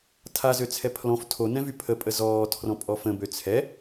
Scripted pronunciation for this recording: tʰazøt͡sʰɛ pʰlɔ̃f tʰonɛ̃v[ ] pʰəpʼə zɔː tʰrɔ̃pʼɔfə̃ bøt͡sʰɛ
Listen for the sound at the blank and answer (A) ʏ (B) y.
B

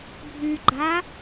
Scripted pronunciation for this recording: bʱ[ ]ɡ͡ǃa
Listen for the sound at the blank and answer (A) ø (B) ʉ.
B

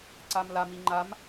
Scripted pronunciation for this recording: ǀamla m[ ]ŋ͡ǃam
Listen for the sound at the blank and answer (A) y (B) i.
B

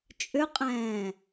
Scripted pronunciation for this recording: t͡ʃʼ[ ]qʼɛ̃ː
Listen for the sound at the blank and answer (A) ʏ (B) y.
A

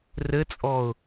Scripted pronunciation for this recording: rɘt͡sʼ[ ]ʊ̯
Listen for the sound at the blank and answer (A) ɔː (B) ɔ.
A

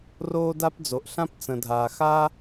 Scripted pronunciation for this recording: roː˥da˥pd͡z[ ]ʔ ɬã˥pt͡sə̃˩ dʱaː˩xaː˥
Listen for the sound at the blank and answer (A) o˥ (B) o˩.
B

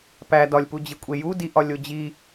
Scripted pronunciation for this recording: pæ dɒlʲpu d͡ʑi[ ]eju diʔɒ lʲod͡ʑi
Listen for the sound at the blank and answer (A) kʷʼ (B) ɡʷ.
A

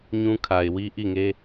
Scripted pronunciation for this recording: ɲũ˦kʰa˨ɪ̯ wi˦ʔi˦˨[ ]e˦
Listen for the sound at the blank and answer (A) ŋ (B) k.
A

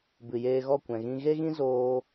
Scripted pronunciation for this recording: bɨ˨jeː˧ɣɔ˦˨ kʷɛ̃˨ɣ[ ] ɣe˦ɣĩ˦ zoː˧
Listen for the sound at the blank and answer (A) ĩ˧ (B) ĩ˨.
A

